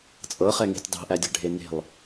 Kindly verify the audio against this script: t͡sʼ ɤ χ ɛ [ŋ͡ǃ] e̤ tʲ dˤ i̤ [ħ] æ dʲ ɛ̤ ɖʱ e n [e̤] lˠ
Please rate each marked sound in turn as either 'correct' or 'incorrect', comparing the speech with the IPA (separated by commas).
incorrect, incorrect, correct